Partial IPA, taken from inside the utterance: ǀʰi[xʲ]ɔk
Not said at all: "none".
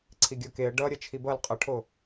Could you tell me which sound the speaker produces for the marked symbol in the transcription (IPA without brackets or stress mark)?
ɡʲ